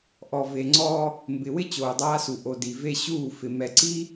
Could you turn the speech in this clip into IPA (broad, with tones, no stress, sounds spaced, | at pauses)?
ʔ ɔ˨ v e˨ ŋ͡ǀ ɔː˦ | m b ɪ˨ w ɪ˦ t͡ɕ oː˨ dˤ aː˦ s u˨ ʔ o˨ d i˨ v e˦ ɕ uː˦˨ f ɪ˨ m ɛ˨ ǀ i˦